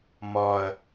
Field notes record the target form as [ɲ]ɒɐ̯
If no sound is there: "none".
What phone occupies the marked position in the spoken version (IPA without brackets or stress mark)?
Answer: m